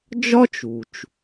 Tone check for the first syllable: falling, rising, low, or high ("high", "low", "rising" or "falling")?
high